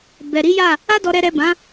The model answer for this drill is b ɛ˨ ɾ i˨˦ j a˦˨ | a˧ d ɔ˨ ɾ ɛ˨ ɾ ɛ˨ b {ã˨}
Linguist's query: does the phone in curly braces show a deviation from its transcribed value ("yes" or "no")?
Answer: yes